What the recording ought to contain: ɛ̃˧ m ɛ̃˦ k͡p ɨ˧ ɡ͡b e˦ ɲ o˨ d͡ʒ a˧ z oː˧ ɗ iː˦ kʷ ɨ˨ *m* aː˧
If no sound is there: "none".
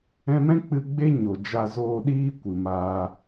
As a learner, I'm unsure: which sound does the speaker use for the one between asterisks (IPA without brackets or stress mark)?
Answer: m